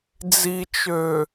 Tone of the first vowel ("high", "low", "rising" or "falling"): low